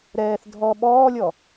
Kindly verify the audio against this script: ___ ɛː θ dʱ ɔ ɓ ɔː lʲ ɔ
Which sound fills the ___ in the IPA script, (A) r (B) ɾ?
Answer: B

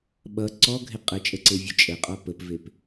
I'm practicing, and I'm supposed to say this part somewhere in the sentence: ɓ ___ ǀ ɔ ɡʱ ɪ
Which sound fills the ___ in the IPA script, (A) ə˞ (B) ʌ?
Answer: B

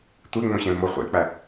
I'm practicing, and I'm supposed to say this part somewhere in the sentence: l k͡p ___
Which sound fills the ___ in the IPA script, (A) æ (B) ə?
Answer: A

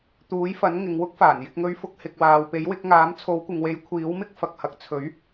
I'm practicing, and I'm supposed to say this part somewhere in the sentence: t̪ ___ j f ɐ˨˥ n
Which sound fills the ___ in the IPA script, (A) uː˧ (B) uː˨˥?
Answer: B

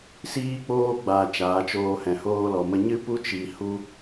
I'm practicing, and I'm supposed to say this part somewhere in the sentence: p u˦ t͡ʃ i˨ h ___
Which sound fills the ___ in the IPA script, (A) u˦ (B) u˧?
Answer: A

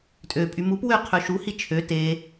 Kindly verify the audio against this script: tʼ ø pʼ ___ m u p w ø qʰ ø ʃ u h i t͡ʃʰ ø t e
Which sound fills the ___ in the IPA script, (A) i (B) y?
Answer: B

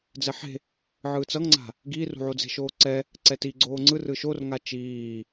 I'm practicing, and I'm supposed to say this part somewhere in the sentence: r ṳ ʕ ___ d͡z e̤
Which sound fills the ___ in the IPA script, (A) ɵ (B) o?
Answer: B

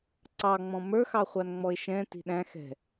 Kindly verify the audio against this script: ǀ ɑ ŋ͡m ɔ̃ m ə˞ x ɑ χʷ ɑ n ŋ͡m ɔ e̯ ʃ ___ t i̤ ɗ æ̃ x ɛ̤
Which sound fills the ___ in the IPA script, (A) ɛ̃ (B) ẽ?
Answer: A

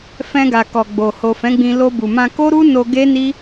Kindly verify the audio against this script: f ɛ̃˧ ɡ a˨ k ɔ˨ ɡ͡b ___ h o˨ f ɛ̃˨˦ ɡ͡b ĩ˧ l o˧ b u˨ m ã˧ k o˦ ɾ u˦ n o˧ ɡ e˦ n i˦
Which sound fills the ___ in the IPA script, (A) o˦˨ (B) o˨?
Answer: B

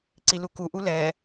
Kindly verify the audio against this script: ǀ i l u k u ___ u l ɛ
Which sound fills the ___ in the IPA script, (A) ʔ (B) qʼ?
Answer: A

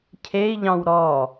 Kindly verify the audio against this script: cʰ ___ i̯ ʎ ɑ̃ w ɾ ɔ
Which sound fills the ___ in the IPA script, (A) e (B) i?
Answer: A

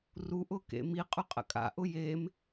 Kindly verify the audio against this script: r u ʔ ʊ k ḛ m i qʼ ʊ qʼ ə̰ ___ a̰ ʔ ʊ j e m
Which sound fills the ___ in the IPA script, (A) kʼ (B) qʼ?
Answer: A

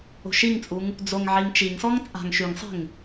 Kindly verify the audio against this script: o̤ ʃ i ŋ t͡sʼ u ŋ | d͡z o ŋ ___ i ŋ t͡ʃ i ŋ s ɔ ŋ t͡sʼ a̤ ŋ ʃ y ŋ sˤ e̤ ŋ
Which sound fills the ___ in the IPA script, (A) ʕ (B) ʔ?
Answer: A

